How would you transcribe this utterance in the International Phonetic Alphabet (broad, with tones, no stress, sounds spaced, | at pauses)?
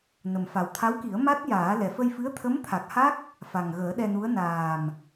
n ə˨˩ m f a˨˩ w t̪ʰ a˧˥ w k i˨˩˦ ə̯ m a˦˥ t̚ j aː˨˩˦ l ɛ˨˩ f ə˧ j f ɨ˧˥ ə̯ t̪ʰ ə˧˥ m t̪ʰ a˨˩ k̚ h a˦˥ k̚ | f a˨˩ ŋ ɣ əː˨˩˦ ɗ ɛ˧ n u˧˥ ə̯ n aː˨˩ m